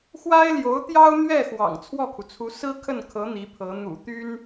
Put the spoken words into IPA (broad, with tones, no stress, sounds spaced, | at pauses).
x w a˥ ɪ̯ l j o˧˥ ʊ̯ t̪ j ɑ˥ ʊ̯ n̪ ɥ ɛ˥˩ x w ɑ̰˨˩ ŋ t͡sʰ w ɔ˥˩ kʰ u˩ t͡sʰ u˧˥ s ɹ̩˥ kʰ ə˥˩ n kʰ ɤ˧˥ n̪ i˧˥ pʰ ɤ˧˥ n̪ ṵ˨˩ t̪ y˥ n